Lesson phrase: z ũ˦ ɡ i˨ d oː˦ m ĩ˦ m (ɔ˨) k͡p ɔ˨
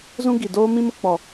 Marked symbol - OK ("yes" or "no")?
no